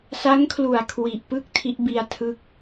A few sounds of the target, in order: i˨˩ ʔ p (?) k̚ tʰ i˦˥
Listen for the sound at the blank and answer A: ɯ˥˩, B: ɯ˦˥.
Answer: A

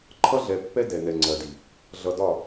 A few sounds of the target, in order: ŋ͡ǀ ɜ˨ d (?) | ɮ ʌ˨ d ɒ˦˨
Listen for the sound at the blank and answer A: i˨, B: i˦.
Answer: A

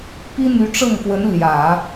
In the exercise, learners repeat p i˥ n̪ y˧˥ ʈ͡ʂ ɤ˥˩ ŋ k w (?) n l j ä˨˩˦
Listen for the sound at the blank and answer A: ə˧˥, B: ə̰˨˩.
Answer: A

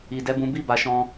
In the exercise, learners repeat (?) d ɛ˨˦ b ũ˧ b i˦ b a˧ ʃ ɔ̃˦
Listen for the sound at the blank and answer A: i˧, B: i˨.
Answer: B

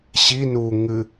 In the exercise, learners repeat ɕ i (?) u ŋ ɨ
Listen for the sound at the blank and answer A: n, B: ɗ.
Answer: A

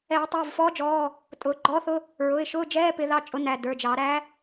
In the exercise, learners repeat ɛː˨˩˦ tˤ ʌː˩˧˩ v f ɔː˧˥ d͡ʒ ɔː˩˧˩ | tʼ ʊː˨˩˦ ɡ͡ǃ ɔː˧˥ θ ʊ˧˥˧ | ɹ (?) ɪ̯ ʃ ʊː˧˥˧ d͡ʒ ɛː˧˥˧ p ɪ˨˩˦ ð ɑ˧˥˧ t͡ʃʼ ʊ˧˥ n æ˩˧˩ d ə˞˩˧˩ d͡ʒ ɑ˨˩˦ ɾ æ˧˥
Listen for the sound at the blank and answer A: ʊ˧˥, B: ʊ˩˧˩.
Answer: B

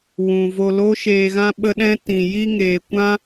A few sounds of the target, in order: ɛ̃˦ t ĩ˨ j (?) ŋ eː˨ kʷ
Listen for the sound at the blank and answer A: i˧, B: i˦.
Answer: A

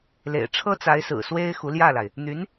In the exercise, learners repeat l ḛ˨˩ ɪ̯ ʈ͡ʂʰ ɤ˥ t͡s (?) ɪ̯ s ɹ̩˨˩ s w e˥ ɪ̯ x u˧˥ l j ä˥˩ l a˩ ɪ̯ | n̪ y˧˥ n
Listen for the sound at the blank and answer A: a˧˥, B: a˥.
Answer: A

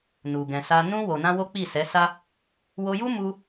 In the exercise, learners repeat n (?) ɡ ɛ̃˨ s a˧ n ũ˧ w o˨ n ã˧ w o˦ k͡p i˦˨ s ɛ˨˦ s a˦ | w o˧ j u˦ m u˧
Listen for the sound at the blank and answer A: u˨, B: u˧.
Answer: A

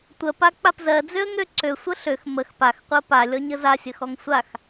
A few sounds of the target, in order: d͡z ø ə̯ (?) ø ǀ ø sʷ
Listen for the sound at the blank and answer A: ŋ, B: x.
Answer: A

